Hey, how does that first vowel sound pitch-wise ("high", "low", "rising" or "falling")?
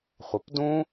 low